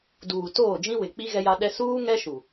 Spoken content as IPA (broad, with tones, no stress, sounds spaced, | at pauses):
d uː˨ t oː˦˨ d͡ʒ ĩ˦ w ɪ˨ k͡p i˦ ɣ ɛ˦ j a˦ ɗ ɛ˦ s uː˦ ŋ ɛ˦ ʃ u˨